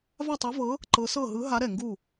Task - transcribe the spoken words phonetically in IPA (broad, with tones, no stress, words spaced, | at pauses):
va˥˨tˤɛ˧˥vɤ˧˥ | ǃɤ˧˥sɤ˥˨ ɦɯ˧˥ɦa˧˥ ɾɛ˧˩ŋɡu˥˨